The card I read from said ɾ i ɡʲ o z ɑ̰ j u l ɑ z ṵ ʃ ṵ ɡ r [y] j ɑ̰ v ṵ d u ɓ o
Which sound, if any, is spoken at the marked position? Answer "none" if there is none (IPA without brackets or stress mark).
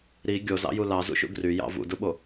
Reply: y